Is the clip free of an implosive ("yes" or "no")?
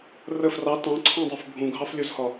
yes